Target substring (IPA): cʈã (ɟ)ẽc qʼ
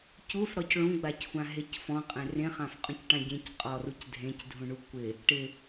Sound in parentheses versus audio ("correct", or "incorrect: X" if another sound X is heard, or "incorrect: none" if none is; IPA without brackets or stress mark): correct